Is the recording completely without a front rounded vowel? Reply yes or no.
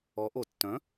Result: no